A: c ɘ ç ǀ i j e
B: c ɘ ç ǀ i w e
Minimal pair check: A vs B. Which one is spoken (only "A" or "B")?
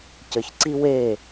B